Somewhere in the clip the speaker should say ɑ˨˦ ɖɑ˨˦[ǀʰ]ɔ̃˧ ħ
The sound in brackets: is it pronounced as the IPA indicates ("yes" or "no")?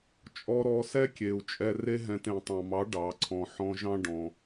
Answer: yes